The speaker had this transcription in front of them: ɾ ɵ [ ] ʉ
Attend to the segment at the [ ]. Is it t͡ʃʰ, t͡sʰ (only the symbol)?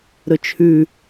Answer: t͡ʃʰ